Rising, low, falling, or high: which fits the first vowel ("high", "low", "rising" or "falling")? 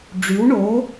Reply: rising